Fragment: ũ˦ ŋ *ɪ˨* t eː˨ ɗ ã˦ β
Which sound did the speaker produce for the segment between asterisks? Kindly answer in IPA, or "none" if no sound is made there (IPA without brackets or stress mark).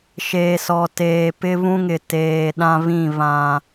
ɪ˨